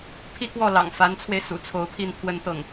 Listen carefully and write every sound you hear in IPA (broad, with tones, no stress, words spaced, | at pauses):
pʰi˥˧kwɔ˥˩ lɑ̰˨˩ŋ fa˧˥nt͡sʰwe˧ɪ̯ sṵ˨˩t͡sʰo˧˥ʊ̯pʰi˥˩n pʰwə˥nt̪ɤ˥˩ŋ